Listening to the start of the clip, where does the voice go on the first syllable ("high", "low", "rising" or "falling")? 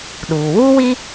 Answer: low